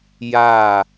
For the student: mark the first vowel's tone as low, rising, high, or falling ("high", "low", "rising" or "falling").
falling